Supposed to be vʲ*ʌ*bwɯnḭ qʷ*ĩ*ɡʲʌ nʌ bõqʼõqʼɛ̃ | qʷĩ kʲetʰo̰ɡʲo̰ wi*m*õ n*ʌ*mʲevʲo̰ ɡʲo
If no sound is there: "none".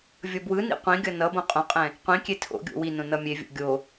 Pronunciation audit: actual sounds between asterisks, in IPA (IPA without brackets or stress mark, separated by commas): ʌ, ĩ, n, ʌ